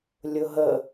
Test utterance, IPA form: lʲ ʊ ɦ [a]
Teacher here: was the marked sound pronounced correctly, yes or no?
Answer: no